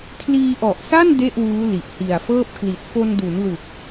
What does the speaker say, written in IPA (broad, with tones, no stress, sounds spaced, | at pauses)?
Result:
kʰ l iː˧ ʔ ɔ˨˩ ʔ s a˥˩ n d e˥˩ ʔ w uː˦˥ l i˨˩ ʔ h i˨˩ a̯ f ɤː˥˩ p̚ k l i˨˩ t̚ f o˧ n d u˩˦ n l u˨˩ k̚